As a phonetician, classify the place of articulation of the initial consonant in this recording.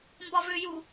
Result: labial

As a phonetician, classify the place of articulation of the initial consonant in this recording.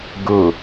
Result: velar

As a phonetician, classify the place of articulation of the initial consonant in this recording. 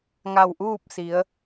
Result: velar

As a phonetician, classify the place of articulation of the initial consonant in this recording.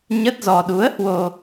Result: palatal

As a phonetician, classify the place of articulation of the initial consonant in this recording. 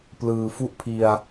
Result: labial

